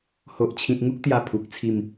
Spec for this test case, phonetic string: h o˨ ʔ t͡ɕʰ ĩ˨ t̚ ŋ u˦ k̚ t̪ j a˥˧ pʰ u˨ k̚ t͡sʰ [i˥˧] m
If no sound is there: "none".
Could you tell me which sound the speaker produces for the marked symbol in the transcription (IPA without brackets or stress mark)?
i˥˧